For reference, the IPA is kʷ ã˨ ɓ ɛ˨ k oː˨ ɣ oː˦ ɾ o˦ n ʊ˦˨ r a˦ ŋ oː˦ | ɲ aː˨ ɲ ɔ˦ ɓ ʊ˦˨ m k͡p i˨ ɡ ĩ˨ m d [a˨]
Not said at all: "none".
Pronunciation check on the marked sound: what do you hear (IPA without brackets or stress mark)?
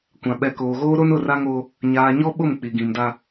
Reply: a˦